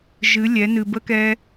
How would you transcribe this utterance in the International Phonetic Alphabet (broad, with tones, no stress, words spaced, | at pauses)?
ʒɨ˩˧lʲɛ˩˧ nɨ˩bə˧˥kɛ˧